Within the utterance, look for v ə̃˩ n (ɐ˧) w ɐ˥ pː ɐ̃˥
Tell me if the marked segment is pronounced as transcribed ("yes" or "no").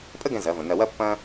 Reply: yes